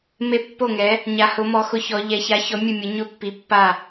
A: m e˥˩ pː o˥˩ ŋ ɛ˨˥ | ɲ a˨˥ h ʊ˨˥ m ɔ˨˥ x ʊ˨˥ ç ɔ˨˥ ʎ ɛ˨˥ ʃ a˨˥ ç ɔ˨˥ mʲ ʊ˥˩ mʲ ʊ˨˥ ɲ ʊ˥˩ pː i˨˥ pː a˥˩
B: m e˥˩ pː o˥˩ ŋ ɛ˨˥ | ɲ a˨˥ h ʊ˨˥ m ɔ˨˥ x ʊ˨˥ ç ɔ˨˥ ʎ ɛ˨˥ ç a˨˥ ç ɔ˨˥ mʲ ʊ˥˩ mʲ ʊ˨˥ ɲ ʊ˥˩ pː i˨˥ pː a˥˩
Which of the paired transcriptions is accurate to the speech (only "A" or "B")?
B